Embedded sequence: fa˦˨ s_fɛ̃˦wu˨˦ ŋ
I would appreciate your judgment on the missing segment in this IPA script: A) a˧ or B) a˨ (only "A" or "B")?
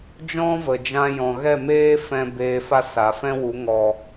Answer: B